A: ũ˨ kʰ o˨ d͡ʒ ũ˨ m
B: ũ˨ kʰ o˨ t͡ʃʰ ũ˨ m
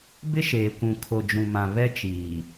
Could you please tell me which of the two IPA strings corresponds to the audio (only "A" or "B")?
A